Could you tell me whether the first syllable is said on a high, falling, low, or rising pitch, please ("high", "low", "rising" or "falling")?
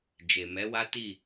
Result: low